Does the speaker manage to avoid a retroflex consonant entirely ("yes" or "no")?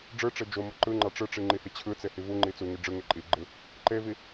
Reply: no